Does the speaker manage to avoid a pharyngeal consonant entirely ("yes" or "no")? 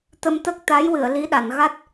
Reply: yes